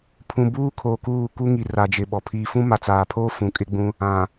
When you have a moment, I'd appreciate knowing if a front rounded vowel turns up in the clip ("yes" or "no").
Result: no